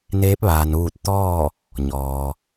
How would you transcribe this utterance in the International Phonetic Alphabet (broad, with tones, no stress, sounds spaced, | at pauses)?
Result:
n eː˧˥ p̚ ʋ aː˩ n ʋ uː˧˩ t̚ t̪ ɔː˥˨ | ɲ ɔː˩